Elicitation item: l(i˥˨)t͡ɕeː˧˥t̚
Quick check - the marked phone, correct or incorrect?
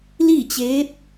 correct